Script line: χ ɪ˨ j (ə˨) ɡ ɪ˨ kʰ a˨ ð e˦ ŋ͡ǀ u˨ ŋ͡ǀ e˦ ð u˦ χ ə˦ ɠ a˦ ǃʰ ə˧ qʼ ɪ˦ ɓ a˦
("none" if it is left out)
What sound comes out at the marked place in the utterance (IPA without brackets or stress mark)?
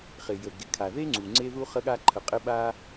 ə˨